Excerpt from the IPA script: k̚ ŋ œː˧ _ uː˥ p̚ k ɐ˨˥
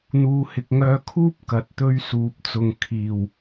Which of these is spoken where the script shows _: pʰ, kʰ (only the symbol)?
kʰ